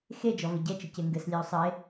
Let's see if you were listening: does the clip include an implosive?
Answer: no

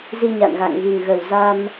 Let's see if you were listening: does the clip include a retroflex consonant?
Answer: no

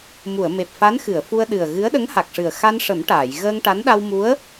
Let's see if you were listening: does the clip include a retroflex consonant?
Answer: yes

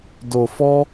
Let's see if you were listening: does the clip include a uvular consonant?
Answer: no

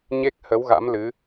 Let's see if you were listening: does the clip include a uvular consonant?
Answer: no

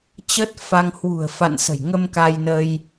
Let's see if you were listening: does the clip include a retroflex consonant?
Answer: no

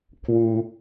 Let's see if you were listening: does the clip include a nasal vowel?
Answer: no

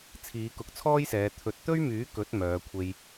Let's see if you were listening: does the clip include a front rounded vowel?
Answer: yes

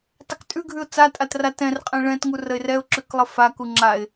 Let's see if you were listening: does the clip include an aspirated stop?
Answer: no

